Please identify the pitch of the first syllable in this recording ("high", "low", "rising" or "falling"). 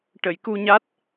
low